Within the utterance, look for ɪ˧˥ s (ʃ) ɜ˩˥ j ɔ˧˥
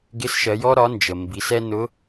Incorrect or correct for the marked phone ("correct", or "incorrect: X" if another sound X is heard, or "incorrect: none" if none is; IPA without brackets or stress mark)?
correct